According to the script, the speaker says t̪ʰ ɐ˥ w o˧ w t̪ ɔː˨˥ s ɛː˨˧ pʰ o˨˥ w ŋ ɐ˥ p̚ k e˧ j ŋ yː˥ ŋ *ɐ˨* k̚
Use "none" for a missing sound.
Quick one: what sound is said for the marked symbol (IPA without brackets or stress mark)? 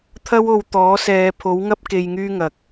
ɐ˨